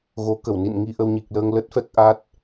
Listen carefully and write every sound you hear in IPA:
ɣ o˨˦ k ə˧˩ w n ḭ˧˨ n ŋ i˧ ʔ ə˧ w ɲ i˨˩ k̚ l əː˧ ŋ l ə˦˥ t̚ f ɛ˦˥ k̚ ʔ a˦˥ t̚

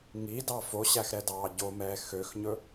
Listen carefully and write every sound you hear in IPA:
ŋ i d ɑ f o ɕ æ x ɾ ɛ d ɑː ɟ o m ɛː x ø x ɲ ɵ

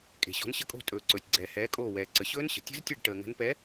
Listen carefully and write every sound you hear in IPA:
kʼ e̤˩ ɕ ɔ̤˨˦ n ɕ ə˦˨ kʼ o̤˦˨ tʼ ɵː˩ ǀ ɵː˩ tʲ ɡ͡ǀ ɛː˩ h ɛː˨˦ kʼ oː˦˨ w ɛː˩ ǀ ə˩ ɕ ɵː˦˥ n ɕ ə̤˩ tʲ ə̤˦˥ z tʲ ɛ˦˨ ɖ ʈ əː˩ ŋ ə̤˨˦ n p ɛ˨˦

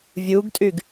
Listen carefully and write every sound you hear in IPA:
vʲ u ɡ tʼ y ɡ

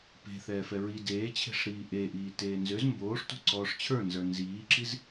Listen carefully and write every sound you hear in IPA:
p e̤ θ ɛː f ɛ ɹ i d eː t͡ɕʰ e̤ ʂ ɾ iː ʔ e ʔ iː t eː n z ø z m b oː ʂ t o̤ ǀ ɔː ʂ t͡ɕʰ ə˞ n z ə˞ n z iː ǁ i z

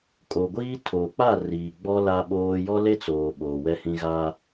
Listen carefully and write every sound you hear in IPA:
kʼ o˨ ɡʷ iː˦ tʰ oː˨ k͡p a˦˨ r iː˨ ɡ͡b ɔ˦ l a˦ ɓ oː˦ j ɔ˦ l e˦ t͡s oː˨ ɓ oː˨ w ɛ˦ h ĩ˦ ɣ a˦

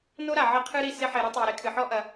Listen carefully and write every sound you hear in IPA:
n o˦ ɾ a˨ ʕ ɘ˦ qʰ ɨ˦ ɾ i˧ s e˦ ħ e˧ ɾ u˦ tˤ iː˨ ɾ e˧ kʰ ɨ˨ ħ ɔ˦ ʔ ɐ˧

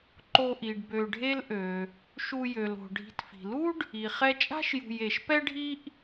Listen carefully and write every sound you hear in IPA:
ǃ o˨ ʔ i˩ ɖ b ø˨ ɖʱ e˦ l ʔ ø˩ | ʃ u˨ j ø˩ l o̤˩ ɖʱ i̤˨ t f i̤˩ l u˥ ɖ | i˩ χ ɛ˦ t͡ʃʼ a̤˥ ʃ j ṳ˨ j e˩ ʃ p ɛ˥ ɖʱ i˦ ʔ

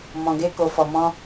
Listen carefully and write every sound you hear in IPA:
m ɔ̃˨ ɡ e˧ k o˨ f ɔ˨ m ɔ̃˧

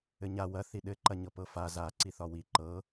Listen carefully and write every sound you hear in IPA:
ɘ ɲ a w ɐ θ i ɗ ɘ ǃ ɐ ɲ ɤ p ɤ f a z a ǀ i θ ɒ w i ǃ ɤ

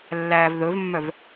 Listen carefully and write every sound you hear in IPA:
lː æː v ð ɵ v mː œ v

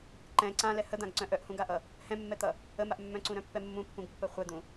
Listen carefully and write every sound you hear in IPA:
ǃ ɛ̃ ǀ ã l ɛ h ə d̪ ã ɡ ǀ œ̃ ʔ œ ʔ h ũ ɡ a ʔ ʌ | h ɛ̃ mː ɛ t̪ ʌ | ə m a ʔ mː œ̃ ǀ ũ ɾ œ̃ pː ɛ mː ũ pː ũ ɡ pː ɜ χʷ ɛ d̪ ũ

